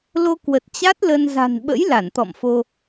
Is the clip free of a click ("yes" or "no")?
yes